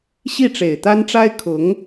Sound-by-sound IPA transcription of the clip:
ɕi˥˩ʈ͡ʂe˨˩ɪ̯t̪a˥nʈ͡ʂa˥ɪ̯ kʰʊ˧˥ŋ

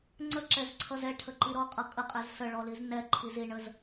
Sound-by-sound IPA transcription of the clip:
ŋ͡ǀəǁɛzǀʰʌz ɛʈʰəǃi ɾɔqʼʌ kʼəqʼɛz səɭɔliz nɛǃʰiz iɳəz

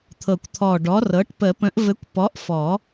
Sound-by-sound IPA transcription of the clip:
t̪ʰɤ˨˩kʷt̪ʰɔ˨˩ ɖɔ˨˥rɤ˨˥ʈ pə˨˩˦pə̃˨˥ʔvɘ˨˥kʷ pɔ˨˥ʔfɔ˨˩˦

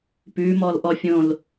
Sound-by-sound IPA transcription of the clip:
pʉmɔlʔɔ fʲõl

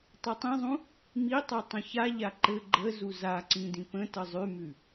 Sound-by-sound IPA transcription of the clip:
tˤutˤĩzˤũ | mitˤɛ tˤə̃çaʎa ǃɘ ɡ͡ǃə zuzaǀĩ dĩpə̃tə zˤʉmʉ

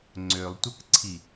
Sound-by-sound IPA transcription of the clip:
ŋ͡ǀølˠtʷəkǀʰi

